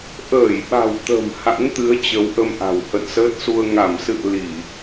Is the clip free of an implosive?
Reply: no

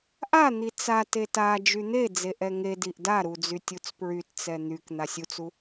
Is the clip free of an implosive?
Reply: yes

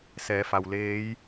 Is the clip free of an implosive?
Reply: yes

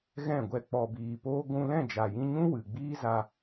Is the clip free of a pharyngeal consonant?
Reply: yes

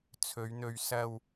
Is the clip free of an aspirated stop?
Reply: no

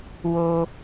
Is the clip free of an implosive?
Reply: yes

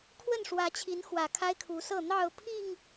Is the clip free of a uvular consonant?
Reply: yes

